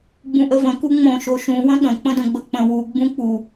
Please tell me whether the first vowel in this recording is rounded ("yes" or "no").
yes